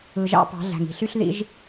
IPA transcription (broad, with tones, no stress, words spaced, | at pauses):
ɯ˨ʒɑ̰˦pɑ̤˨˦ ɮæ̤˨ŋi̤˨ɬy˦ɬ ðḭ˦ʒ